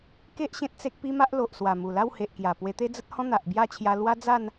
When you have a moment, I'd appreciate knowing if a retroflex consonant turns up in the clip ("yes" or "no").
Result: no